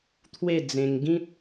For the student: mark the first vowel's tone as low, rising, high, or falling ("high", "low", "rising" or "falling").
falling